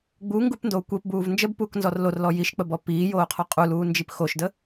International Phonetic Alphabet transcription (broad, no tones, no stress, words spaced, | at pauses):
ɡ͡buŋɡupndoː kʷepbuːv nd͡ʒəbpuːknzɔr lorlɔ jiʃk͡pəbɔ piːjoːqʰɔ qʼuluːnd͡ʒip xoʃdə